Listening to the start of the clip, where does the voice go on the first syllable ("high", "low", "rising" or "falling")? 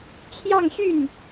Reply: falling